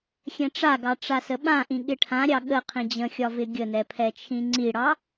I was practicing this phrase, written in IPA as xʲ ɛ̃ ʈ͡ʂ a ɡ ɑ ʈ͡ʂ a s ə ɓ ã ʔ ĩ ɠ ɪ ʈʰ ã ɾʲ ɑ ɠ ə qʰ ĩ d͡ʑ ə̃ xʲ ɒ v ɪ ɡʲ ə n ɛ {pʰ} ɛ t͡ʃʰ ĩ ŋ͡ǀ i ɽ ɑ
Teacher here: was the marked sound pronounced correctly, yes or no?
yes